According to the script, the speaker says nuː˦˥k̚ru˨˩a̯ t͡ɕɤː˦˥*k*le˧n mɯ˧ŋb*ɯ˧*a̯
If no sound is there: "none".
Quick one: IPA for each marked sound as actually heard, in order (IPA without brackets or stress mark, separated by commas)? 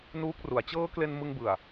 k, ɯ˨˩